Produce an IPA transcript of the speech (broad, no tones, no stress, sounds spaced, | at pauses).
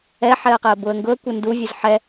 ɛ ħ ɛ ə̯ q ɛ ə̯ b ʊ ə̯ ŋ ɡ ʊ ə̯ kʷ ə n d u vʲ ʊ z ħ ɛ